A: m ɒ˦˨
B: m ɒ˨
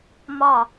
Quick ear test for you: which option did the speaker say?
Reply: A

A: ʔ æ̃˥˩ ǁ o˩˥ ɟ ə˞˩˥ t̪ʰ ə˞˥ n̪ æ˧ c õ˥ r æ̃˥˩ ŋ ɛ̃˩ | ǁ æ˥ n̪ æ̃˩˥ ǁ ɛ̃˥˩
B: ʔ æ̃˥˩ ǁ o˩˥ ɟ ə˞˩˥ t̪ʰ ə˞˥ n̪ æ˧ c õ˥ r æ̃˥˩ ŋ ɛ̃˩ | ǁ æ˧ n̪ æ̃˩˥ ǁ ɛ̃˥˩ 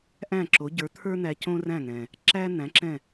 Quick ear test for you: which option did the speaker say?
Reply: A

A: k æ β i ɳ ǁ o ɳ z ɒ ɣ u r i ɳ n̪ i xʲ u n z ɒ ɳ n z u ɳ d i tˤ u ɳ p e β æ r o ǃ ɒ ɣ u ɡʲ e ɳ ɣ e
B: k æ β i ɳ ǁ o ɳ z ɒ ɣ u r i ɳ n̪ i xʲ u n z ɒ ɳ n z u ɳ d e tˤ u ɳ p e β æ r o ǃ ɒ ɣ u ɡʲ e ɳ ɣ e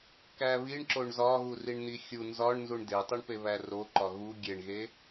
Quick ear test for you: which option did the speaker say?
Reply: B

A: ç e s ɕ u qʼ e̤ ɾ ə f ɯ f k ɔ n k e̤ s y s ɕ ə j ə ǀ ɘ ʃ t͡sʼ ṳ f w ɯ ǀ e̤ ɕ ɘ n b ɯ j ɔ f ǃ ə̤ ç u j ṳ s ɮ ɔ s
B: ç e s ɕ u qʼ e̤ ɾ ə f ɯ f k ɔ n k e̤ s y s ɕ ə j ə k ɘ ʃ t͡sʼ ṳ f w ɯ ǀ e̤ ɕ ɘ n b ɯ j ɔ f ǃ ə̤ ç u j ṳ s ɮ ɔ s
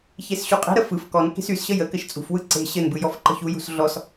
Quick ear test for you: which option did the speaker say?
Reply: B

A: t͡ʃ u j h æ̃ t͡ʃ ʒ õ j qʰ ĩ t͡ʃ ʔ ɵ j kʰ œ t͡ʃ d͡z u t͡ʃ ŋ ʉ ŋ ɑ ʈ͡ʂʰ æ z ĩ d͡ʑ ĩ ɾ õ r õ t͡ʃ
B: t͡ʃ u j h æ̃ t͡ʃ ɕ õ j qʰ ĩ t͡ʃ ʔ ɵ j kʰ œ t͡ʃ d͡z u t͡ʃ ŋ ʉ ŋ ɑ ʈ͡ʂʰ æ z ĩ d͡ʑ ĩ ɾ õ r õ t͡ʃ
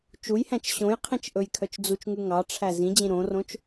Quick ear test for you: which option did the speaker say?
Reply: B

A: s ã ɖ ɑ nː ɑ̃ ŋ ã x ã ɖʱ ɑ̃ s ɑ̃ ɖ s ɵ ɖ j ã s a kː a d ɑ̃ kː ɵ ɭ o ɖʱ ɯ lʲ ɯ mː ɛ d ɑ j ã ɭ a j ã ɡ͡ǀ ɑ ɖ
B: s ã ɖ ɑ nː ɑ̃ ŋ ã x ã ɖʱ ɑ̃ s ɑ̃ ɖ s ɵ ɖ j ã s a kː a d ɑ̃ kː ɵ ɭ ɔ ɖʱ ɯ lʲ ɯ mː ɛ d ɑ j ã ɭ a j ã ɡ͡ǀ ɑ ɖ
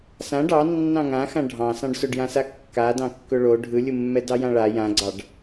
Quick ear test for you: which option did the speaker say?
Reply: A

